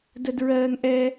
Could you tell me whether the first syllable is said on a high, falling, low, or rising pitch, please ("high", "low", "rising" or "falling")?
high